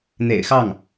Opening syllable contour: low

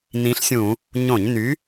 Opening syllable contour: rising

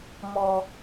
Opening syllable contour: high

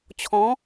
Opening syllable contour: rising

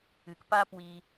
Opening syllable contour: low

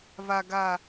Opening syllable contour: low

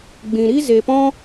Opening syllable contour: low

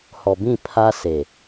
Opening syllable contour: low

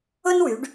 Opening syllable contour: high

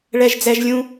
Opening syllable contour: high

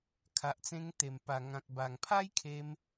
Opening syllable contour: low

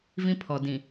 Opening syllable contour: high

